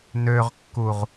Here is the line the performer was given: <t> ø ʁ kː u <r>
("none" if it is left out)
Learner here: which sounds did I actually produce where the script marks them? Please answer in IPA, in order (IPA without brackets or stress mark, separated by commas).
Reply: n, ʁ